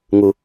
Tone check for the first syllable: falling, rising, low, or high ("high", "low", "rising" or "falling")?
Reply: low